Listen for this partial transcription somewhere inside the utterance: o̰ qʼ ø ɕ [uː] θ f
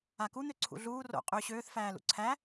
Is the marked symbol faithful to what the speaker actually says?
no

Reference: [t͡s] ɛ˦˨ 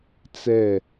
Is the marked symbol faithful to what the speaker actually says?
yes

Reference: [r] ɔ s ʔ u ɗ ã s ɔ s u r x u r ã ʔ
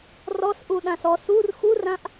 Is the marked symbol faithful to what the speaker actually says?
yes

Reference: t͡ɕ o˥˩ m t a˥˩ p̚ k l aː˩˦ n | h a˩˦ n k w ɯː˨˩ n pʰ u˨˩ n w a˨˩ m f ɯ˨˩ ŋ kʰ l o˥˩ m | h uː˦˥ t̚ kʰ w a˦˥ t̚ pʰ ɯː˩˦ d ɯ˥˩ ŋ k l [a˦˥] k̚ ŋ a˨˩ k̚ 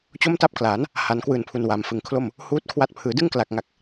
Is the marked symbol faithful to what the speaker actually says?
no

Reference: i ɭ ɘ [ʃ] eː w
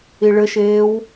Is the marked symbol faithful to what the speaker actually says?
yes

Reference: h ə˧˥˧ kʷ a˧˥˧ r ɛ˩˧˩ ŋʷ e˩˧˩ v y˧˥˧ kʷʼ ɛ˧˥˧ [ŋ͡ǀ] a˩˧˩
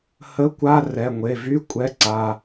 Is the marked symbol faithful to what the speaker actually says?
no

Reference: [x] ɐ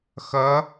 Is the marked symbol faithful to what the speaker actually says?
yes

